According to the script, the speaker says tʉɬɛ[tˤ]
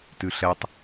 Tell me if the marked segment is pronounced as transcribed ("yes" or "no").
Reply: yes